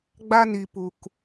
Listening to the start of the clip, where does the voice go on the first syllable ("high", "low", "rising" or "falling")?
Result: high